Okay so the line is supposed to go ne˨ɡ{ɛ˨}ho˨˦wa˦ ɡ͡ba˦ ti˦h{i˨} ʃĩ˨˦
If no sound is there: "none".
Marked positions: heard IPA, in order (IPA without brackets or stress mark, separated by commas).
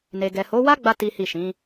ɛ˨, i˦˨